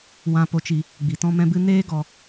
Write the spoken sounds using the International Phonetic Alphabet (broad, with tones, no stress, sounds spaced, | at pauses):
w ã˧ p o˧ t͡ʃ i˧ | ɡ͡b i˨ t ɔ̃˧ m ɛ̃˧ b ɨ˧ n eː˦ ɡ ɔ˧